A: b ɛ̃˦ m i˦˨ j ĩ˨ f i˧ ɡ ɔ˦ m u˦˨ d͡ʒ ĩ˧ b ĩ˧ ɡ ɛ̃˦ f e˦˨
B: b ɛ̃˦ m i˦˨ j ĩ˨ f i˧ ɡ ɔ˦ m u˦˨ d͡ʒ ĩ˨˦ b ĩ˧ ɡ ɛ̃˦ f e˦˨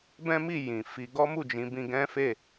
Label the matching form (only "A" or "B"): B